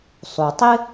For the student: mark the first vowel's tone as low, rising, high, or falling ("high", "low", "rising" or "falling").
low